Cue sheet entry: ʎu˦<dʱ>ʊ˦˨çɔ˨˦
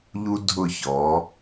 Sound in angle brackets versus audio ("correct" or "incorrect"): correct